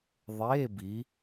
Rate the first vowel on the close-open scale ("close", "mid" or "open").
mid